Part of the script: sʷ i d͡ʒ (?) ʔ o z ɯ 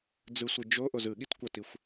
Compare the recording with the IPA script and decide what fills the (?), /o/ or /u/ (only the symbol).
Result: o